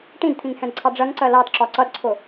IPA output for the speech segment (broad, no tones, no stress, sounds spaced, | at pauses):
ʈ ĩ d t̪ʰ ĩ ŋ h ɛ̃ d ǀʰ ɑ ɖ͡ʐ ɜ ŋ ǀ ɜ l ɑ d ǁ ɒ ǀ ʌ d ǀʰ ʊ